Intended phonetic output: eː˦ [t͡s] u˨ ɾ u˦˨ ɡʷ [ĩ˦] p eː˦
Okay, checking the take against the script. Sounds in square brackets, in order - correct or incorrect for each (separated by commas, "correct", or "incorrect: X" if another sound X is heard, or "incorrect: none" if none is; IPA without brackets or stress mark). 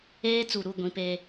correct, correct